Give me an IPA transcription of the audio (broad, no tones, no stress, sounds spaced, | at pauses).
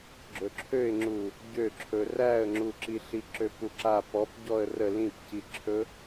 ɡ͡ǁ ɵ ǁʰ ø ɪ̯ ŋ͡ǁ u | ɟ ø ǁʰ ɵ r æ ə̯ ŋ͡ǁ u ǁ i ɬ i ǁ ø p u ǁ a p ɔ p ɟ ɔ ə̯ r ə l ĩ p c i ǁʰ ɵ